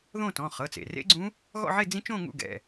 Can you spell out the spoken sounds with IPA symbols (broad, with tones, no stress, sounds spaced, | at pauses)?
ð õ˥˧ t ɔ̃˩˧˩ χ ɤ˩˧˩ t͡s ḛ˩ r ḛ˦˥ ɡ͡ǀ ũ˦˥ | ɣ ɔ̰˥˧ ʕ e˥˧ d͡z ĩ˦˥ t͡ʃ õ˥˧ ŋ ṵ˥˧ ɡ ɛ̰˩˧˩